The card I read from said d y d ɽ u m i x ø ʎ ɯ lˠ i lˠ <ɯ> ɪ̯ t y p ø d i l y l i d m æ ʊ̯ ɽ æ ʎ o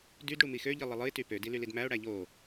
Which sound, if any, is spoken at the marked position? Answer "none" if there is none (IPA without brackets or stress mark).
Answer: ɯ